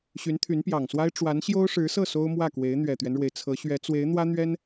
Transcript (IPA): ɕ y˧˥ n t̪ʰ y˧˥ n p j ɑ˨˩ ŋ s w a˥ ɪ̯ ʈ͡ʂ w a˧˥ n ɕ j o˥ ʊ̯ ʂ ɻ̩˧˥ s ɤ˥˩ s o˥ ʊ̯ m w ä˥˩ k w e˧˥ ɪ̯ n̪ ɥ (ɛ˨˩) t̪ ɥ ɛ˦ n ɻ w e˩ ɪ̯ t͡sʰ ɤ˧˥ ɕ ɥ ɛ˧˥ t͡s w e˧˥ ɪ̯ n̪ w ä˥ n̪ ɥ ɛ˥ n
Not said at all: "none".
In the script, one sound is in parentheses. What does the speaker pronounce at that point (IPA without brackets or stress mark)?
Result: ɛ˨˩